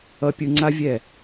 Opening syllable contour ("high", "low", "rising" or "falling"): low